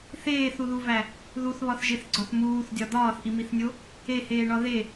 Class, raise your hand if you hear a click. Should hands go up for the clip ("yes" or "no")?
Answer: yes